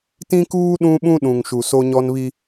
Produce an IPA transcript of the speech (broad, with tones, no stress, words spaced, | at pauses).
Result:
tĩ˦kuː˦ ɗũ˦ɓũ˦ɗũ˨ŋʃu˨ so˦ɲɔ˦nβi˦